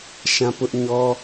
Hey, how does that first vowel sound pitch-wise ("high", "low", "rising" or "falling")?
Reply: high